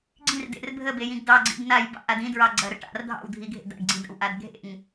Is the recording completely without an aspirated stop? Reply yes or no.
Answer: yes